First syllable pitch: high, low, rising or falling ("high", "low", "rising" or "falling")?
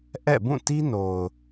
falling